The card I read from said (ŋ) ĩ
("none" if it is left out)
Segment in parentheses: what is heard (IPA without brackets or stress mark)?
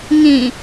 ŋ